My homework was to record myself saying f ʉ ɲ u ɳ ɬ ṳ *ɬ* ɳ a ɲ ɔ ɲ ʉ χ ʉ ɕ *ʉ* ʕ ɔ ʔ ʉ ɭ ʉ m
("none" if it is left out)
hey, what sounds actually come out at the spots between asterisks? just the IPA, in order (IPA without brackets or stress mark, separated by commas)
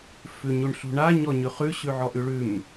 none, ʉ